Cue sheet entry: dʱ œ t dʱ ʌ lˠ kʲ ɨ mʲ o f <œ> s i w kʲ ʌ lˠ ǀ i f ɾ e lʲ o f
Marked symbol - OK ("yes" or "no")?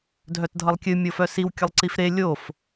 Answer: yes